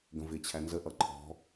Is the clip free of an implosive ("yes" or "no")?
yes